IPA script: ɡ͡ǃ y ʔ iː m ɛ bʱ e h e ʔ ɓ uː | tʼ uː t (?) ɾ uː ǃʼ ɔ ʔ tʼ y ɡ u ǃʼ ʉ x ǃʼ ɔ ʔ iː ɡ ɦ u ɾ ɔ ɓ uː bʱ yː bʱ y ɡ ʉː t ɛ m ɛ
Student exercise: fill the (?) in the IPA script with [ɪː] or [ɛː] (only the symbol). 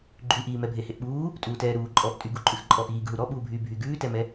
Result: ɛː